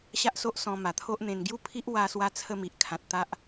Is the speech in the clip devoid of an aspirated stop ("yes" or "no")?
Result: no